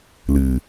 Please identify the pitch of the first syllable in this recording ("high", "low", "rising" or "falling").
low